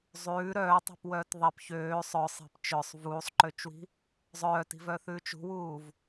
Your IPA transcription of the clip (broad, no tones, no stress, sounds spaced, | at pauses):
zˤ ʉː ɾ œː tˤ i̤ p w œː t ðˤ i p ç øː sˤ œ sˤ e̤ p t͡ʃ œ sˤ v uː sˤ ǃ ø t͡ʃ w i̤ | zˤ œː t i̤ v œ θ ʉː t͡ʃ ṳ w uː v